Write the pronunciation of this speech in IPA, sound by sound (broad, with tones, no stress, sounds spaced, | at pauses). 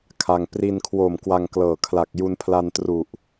kʰ a˧ ŋ p r i˧ n kʰ w o˨˩ m k w a˧ ŋ k l ɤː˨˩ kʰ l a˨˩ k̚ j u˧ n pʰ l a˧ n t r u˨˩ ʔ